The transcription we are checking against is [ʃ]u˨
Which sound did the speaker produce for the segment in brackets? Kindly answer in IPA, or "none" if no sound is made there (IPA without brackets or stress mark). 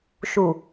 ʃ